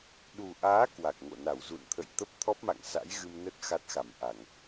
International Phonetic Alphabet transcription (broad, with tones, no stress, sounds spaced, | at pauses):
ɗ u˨˩ ʔ aː˨˦ k w a˨˩ k̚ ŋ o̰˧˨ n a˧˩ w z ṵ˧˨ n t̪ʰ ə̰˧˨ j t̪ ə˦˥ p̚ t̪ʰ ɔ˦˥ p̚ m a̰˧˨ ŋ s a̰˧˥ j ɣ ɨ˧ m n ə˦˥ t̚ x a˦˥ t̚ x a˧˩ m ʔ a˧˩˨ ŋ